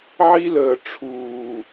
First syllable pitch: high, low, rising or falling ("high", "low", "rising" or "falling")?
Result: high